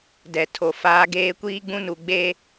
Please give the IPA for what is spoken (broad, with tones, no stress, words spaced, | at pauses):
dɛ˨ tʰo˨ faː˦ɡeː˦ kʷiː˦ɡ͡bũ˦nu˨ ɡ͡be˦